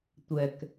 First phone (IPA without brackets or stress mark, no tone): tʷ